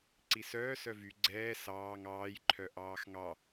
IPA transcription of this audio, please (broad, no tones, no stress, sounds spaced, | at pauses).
ǀ i s œː s œ v y ɡ͡ǀ ɛː s ɑː ŋ ɑː j ǃʰ œ ʔ ɑː x ŋ ɑ